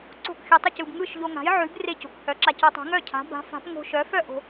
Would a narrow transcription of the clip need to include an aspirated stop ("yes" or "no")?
yes